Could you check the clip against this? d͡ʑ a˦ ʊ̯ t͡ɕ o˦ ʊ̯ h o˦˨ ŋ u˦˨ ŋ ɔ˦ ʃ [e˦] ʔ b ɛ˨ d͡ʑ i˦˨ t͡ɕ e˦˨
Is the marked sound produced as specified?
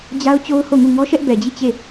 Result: no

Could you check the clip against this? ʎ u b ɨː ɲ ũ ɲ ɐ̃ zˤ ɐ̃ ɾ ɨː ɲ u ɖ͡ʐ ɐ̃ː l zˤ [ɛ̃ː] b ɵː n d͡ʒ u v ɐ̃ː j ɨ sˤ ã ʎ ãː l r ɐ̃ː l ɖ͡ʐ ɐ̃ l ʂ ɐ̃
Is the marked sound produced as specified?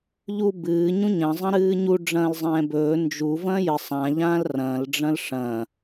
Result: yes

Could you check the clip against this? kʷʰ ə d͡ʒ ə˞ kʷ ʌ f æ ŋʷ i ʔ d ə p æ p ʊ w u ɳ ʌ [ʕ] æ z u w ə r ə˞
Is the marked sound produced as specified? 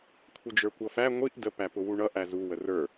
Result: no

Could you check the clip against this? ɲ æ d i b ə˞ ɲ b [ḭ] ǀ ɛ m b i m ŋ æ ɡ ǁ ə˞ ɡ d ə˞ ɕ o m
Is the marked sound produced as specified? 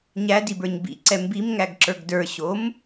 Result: yes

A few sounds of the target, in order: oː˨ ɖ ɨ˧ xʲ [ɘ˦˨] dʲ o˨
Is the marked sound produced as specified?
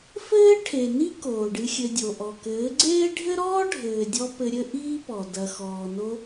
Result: no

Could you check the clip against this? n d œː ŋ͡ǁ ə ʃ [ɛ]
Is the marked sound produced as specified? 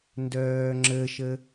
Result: no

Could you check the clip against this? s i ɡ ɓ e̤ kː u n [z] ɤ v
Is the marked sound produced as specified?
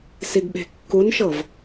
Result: no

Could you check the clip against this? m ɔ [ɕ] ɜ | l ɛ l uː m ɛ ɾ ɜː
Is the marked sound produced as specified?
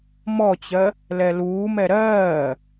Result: no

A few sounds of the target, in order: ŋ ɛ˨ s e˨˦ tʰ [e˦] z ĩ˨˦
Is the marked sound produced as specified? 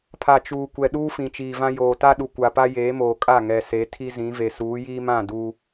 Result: no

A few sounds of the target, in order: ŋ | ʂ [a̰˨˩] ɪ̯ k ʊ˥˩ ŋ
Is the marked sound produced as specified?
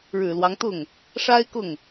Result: no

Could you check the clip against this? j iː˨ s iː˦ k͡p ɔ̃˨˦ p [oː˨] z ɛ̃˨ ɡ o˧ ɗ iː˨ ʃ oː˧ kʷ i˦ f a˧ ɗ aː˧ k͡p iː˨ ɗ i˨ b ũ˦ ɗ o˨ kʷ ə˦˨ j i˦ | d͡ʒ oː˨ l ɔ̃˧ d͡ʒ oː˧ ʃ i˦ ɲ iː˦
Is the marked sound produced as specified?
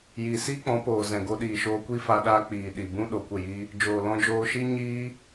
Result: yes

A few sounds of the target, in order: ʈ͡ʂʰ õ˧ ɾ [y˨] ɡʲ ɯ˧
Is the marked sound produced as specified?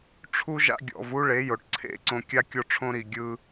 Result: no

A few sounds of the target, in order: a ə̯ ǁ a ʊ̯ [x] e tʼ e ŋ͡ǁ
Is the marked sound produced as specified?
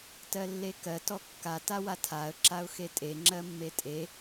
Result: yes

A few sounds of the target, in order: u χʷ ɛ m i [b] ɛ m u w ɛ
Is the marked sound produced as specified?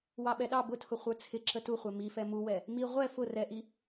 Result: no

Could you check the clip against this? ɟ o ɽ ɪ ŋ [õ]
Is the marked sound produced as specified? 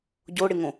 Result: yes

